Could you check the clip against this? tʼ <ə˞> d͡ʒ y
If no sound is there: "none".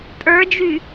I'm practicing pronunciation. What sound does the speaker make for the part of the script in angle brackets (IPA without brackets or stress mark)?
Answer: ə˞